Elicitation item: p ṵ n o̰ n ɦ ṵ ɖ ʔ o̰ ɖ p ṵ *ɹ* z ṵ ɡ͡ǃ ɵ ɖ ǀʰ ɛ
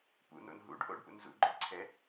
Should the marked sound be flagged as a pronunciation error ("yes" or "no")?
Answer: yes